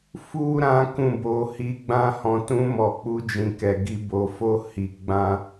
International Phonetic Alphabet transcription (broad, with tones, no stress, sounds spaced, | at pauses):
f u˦ ɾ ã˦ k ũ˦˨ b o˧ h i˧ ɡ͡b ã˦ h ɔ̃˧ t ũ˧ m ɔ˨ k͡p u˨˦ d͡ʒ ĩ˧ k ɛ˨ ɡ i˧ b o˨ f o˧ h i˧ ɡ͡b ã˦